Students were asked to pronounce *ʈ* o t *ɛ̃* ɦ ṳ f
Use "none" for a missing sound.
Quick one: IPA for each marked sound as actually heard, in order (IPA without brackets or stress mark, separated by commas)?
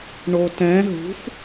ɳ, ɛ̃